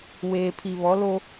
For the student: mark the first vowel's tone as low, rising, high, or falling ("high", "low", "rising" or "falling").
low